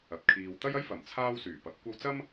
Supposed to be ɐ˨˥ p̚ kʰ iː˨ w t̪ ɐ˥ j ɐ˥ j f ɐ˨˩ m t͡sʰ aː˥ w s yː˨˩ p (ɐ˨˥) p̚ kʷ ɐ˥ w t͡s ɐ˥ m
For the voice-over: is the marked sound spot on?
yes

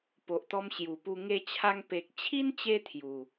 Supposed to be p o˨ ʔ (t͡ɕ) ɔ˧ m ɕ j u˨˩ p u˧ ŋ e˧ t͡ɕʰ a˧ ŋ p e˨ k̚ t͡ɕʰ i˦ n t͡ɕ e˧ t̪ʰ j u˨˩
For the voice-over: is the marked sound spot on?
no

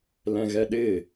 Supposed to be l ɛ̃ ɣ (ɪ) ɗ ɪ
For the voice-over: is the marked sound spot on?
no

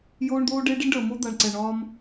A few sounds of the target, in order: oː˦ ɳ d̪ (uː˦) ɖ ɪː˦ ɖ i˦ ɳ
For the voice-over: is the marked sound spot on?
no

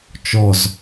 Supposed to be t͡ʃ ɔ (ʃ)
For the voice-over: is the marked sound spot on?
no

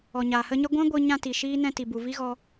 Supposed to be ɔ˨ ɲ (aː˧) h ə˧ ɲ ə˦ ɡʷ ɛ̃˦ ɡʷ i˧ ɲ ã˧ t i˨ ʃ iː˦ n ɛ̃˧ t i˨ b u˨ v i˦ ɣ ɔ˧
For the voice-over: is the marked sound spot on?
no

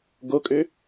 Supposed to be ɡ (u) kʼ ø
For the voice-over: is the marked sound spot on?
no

